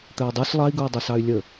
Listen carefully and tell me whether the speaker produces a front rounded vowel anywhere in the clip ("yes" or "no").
yes